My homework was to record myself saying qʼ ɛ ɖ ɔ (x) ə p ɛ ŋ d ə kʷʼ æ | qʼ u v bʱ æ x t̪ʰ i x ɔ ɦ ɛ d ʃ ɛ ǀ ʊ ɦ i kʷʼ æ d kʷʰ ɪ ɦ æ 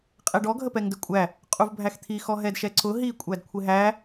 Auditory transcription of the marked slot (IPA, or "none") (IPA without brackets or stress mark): ɡʱ